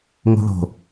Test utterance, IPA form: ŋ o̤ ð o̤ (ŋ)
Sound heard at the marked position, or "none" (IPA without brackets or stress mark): none